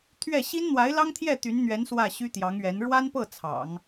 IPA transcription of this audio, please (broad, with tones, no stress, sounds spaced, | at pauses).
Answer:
t̪ʰ ɥ ɛ˥˩ ɕ i˥ n n̪ w a˧˥ ɪ̯ l ɑ˥ ŋ t̪ʰ j ɛ˥˩ t̪ y˧˥ n n̪ ɥ ɛ˧˥ n s w ä˥˩ ɕ y˥ t̪ j ɑ˧˥ ŋ ɥ ɛ˧˥ n ɻ w a˥ n p ɤ˥˩ t͡sʰ ɑ̰˨˩˦ ŋ